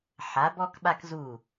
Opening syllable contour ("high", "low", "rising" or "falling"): rising